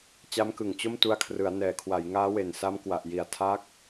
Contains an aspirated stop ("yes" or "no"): yes